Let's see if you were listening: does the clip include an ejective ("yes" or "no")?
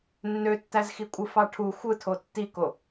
yes